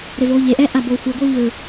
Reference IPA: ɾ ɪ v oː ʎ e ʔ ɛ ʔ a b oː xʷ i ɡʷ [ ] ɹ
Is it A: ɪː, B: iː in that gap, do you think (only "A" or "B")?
B